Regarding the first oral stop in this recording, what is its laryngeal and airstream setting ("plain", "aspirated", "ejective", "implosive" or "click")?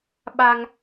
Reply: implosive